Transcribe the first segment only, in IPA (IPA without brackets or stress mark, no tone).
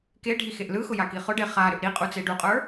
k